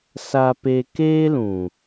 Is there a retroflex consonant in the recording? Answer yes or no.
no